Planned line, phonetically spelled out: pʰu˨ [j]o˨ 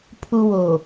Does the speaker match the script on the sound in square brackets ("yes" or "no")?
no